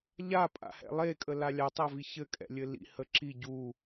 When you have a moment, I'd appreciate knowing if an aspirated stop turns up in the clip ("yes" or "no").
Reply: no